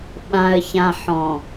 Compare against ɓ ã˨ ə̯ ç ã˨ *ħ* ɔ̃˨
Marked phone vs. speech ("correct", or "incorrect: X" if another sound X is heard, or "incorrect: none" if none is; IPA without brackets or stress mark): correct